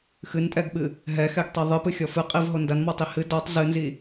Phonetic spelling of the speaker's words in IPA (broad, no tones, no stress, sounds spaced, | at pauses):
x ɨ n tʼ ɛ ɡ ɓ ɨ | ɦ ɛ x ɛ ɡ tˤ i ðˤ ɨ p ɨ xʲ ɔ f ɨ qʼ i v ɦ o n d ɐ n m ɔ tˤ i h ɨ d ɔ tˤ z ɨ n z i